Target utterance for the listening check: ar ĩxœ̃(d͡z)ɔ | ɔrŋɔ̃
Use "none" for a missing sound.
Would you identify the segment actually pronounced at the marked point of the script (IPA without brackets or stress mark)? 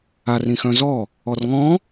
z